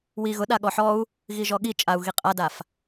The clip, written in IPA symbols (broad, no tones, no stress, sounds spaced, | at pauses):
w i ɣ ʊ ɗ a ɠ ɔ ħ ɔ u̯ | ɣ i ʒ ɔ ɠ i t͡ʃʼ a u̯ ɣ i qʼ a d a f